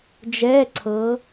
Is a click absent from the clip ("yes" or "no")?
no